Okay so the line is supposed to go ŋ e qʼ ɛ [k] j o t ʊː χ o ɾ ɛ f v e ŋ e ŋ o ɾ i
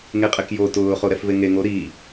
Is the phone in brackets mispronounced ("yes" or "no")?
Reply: no